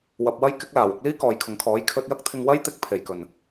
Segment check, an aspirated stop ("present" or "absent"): present